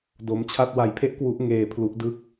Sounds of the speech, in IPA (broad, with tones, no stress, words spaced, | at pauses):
do˦˥mt͡ɕʰa˥˩t̚ wa˧jpʰe˥˩ʔkwu˦˥ʔ ŋeː˧pʰlu˦˥ʔdɯ˥˩k̚